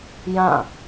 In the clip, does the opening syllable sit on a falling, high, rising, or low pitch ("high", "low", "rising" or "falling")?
falling